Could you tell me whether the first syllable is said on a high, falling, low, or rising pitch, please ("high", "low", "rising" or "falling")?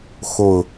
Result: low